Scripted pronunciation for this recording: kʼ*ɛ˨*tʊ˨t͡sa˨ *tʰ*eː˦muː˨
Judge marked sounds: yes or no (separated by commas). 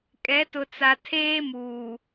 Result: no, yes